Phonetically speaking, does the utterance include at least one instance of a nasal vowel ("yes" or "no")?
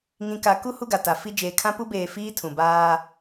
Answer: yes